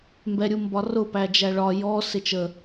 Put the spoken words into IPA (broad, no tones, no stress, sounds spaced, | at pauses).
m b ɛ ɾʲ u m b ɒ r ʊ p æ d͡ʒ æ ɭ ɒ j ɔ s ɪ t͡ʃ ə